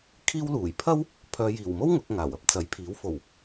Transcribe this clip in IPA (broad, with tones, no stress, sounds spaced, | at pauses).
kʰ iː˥ w l uː˨˩ j pʰ ɐ˥ w | pʰ œː˨ j iː˨˩ w m o˥ w ŋ ʊ˨˥ k̚ ŋ aː˨˩ w ɐ˥ p̚ t͡s ɐ˨˥ j pʰ iː˨˥ w f o˨˩ w